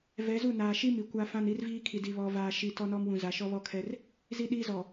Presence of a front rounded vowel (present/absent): absent